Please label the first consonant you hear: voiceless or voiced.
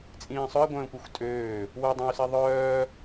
voiceless